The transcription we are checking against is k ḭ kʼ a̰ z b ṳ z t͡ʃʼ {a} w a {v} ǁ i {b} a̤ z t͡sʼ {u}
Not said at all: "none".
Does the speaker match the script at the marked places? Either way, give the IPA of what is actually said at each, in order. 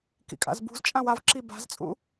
ã, v, b, ṵ

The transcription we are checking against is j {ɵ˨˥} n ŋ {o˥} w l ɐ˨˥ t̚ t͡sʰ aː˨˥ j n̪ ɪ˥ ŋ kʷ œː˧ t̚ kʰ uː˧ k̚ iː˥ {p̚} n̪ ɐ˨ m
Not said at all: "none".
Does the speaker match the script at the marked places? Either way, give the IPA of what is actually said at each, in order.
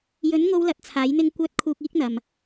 ɵ˨˥, o˧, k̚

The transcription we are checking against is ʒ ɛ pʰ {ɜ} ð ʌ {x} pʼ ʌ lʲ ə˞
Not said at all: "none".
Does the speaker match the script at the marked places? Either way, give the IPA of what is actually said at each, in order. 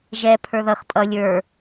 ə˞, x

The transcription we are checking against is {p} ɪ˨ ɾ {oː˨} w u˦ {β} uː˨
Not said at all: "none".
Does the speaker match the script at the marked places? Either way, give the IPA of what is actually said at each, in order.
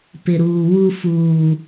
p, uː˨, f

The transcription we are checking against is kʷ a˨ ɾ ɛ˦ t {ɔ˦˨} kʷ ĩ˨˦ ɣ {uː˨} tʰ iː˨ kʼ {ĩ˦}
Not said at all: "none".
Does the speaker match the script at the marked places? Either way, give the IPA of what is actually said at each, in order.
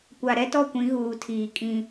ɔ˦˨, uː˨, ĩ˦

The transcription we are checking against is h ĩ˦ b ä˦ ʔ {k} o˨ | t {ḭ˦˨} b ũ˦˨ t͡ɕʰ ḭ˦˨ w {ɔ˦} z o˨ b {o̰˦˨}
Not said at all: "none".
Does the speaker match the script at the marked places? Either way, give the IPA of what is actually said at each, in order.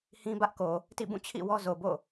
k, ḭ˦˨, ɔ˦, o̰˦˨

